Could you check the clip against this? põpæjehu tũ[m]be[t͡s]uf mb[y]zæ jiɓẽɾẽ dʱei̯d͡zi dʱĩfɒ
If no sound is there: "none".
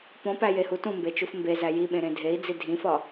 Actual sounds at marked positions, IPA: m, t͡ʃ, e

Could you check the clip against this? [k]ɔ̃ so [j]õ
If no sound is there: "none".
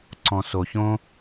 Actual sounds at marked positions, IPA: ǀ, ç

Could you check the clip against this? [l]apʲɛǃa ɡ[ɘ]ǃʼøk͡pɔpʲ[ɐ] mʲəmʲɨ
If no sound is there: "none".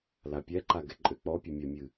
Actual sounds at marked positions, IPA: l, ɛ, ə

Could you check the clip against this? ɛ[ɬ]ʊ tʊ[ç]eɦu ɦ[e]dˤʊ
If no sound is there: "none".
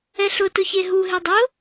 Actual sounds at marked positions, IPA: ɬ, ç, e

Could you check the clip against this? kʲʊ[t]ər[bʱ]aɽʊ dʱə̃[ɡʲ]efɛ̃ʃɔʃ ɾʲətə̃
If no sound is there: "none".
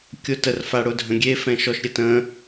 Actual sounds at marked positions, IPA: t, f, ɡʲ

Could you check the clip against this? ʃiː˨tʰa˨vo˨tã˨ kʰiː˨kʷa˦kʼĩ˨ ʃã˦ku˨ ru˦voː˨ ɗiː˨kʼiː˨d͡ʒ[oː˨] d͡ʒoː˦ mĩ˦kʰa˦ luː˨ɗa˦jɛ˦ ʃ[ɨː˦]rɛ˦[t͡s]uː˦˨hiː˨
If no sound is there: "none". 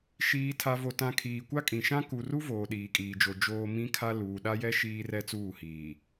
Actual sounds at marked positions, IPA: o˨, iː˦, t͡s

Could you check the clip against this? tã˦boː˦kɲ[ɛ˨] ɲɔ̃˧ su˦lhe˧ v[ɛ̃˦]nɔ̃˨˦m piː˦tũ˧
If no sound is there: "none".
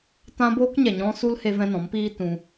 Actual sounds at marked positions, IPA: ɛ˨, ɛ̃˦

